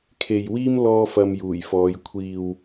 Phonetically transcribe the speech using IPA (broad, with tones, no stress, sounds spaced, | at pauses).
kʰ e˨ j w iː˥ m l ɔː˥ f ɐ˧ m j uː˨˩ j f ɔː˨˧ j kʷʰ iː˨ w